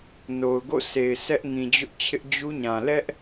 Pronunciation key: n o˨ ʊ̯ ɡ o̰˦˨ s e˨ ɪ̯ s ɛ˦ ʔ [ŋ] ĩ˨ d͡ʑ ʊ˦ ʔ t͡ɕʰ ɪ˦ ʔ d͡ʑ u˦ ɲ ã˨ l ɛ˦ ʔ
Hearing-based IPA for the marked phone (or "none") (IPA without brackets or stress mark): ŋ